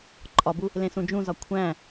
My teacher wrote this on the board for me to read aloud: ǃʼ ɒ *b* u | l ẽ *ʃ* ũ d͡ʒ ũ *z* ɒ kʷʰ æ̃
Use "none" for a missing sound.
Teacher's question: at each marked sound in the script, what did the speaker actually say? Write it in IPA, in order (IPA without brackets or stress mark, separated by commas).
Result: b, s, z